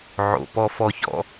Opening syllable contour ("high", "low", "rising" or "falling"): low